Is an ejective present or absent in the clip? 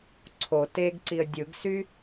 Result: absent